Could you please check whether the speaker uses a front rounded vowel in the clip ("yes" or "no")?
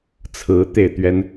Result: no